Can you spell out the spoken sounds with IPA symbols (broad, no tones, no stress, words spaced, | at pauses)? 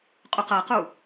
qʼuqɤqu